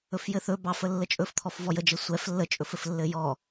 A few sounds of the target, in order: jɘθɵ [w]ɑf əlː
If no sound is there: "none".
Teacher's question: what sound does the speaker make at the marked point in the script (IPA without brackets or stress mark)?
b